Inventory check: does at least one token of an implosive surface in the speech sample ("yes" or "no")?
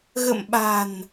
yes